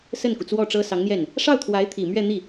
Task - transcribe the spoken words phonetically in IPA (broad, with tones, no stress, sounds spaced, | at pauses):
s ə˥˩ n k u˩ t͡s w ɔ˥˩ ʈ͡ʂ ɤ˥ s ɑ˧˥ ŋ n̪ j ɛ˥˩ n | ʂ ɑ˥˩ ʊ̯ t̪ʰ w a˧˥ ɪ̯ t̪ʰ i˨˩ m ɥ ɛ˥˧ n̪ i˥˩